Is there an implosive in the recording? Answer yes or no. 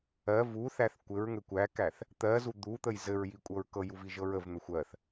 no